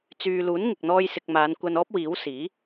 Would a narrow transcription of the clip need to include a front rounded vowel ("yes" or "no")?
yes